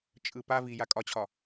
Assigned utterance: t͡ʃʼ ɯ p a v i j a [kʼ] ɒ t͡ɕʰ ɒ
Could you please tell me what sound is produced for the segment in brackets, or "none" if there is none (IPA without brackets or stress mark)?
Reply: kʼ